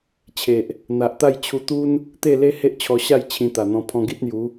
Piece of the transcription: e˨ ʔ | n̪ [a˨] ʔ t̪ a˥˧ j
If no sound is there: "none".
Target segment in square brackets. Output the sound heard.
a˨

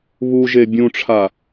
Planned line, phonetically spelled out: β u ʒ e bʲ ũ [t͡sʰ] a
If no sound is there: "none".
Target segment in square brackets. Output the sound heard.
ʈ͡ʂʰ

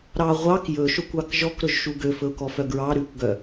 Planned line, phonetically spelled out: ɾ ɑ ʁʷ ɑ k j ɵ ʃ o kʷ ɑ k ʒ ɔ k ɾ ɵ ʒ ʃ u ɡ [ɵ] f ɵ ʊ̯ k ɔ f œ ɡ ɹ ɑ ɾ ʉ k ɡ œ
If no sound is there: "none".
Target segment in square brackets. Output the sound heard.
ø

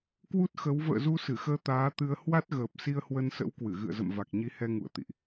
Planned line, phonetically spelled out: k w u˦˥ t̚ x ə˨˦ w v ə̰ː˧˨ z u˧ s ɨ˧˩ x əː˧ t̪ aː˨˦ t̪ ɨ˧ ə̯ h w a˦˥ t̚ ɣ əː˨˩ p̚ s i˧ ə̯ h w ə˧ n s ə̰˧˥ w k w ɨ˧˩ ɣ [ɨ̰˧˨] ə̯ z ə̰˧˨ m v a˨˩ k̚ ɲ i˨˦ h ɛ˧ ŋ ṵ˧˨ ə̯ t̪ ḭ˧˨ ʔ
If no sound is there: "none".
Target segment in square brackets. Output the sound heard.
ɨ̰˧˨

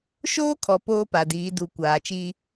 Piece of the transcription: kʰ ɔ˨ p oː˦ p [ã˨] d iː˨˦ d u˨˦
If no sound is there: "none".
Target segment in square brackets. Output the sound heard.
a˨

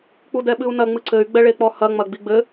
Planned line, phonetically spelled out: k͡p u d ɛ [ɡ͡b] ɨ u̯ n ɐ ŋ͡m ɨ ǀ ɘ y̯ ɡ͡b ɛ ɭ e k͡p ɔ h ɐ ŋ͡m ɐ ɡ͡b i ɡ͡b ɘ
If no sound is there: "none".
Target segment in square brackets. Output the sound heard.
ɓ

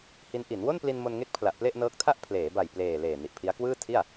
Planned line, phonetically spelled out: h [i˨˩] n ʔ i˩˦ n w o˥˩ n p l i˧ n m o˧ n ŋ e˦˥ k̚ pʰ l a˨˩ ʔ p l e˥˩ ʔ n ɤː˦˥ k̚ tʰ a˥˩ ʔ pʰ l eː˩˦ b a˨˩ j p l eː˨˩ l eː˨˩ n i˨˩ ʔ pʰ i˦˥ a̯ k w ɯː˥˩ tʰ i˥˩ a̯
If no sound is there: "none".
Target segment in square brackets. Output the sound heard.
i˦˥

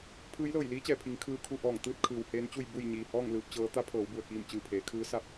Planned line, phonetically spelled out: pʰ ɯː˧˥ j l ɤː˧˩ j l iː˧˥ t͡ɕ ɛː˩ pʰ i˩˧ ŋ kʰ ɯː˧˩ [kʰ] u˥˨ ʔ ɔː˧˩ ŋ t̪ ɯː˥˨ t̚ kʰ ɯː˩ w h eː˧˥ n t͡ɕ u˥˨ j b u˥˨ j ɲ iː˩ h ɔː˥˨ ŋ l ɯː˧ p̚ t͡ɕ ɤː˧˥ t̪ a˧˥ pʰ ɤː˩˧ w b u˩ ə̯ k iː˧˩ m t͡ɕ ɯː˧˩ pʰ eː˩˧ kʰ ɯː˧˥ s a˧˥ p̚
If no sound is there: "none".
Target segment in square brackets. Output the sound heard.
kʰ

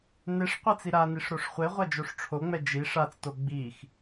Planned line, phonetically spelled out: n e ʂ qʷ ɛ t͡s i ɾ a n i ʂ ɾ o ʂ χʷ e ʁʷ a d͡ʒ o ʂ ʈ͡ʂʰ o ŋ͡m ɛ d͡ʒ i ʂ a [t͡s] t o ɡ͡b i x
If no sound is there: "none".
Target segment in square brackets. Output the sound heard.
t͡s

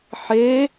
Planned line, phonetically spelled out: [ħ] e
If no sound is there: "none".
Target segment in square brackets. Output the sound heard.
ħ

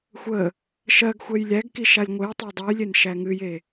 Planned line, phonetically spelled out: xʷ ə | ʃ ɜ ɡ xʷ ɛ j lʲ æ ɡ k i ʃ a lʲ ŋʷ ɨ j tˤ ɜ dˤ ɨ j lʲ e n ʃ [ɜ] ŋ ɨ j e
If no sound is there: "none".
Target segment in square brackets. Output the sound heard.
æ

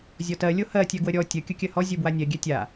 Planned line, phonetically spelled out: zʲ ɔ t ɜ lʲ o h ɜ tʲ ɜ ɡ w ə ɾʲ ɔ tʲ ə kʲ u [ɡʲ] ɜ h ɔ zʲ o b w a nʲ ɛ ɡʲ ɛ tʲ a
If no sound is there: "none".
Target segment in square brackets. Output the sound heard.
kʲ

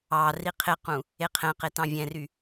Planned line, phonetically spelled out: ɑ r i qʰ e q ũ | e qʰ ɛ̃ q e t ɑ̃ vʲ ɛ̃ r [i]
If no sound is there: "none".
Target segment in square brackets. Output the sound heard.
y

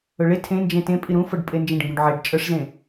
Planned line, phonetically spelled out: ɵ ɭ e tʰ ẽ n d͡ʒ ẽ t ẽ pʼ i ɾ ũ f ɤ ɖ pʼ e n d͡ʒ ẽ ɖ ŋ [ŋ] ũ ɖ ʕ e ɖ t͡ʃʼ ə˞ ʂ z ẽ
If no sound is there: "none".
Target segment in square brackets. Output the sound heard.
ɡ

